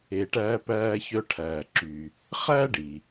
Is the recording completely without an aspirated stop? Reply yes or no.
no